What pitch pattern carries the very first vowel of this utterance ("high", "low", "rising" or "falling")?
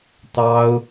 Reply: high